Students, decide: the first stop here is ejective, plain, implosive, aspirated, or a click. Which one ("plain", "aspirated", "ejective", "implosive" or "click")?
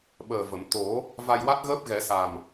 implosive